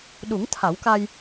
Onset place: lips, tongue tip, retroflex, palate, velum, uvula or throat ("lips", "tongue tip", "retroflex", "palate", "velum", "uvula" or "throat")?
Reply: tongue tip